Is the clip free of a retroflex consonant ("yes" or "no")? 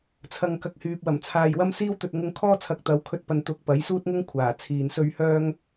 yes